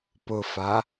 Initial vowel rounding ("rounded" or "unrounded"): rounded